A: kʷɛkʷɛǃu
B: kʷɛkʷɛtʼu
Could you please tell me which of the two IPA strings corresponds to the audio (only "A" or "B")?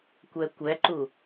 A